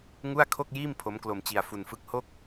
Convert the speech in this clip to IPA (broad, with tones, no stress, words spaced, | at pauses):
ŋu˥˩a̯kʰo˥˩k̚jiː˥˩m pʰo˦˥mklo˧m t͡ɕi˧a̯fu˧nfɯ˦˥k̚ ho˥˩k̚